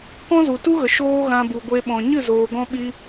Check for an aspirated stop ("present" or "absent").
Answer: absent